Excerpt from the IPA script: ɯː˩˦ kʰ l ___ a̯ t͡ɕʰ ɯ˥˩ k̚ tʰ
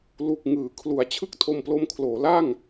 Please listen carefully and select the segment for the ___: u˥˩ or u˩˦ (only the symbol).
u˩˦